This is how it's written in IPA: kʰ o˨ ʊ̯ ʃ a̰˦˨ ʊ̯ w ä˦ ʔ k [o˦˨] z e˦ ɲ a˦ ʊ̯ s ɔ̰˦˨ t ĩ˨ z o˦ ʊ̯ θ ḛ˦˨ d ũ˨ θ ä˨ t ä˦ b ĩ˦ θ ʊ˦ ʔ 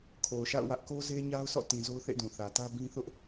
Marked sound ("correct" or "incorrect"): incorrect